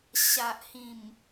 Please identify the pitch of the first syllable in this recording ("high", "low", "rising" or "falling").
low